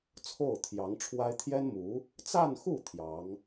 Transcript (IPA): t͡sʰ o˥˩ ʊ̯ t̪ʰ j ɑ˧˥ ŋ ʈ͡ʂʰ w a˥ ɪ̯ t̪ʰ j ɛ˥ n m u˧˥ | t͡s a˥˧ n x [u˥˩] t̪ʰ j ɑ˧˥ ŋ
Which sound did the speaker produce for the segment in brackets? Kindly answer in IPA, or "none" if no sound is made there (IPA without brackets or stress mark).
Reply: u˥˩